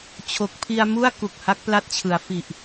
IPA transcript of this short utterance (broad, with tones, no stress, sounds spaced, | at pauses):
t͡ɕʰ o˨˩ k̚ pʰ i˧ a̯ m u˥˩ a̯ k u˨˩ k̚ h a˦˥ k̚ p l a˥˩ t̚ t͡ɕʰ ɯ˩˦ a̯ f i˨˩ ʔ